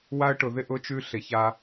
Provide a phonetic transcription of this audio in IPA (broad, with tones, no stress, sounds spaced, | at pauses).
w a˥ ə̯ ʈ ʊ˩˧ ð ɪ˥ ʔ ʊ˧˥ t͡ʃ ʉ˧˥ ɬ ɪ˩˧ ç a˧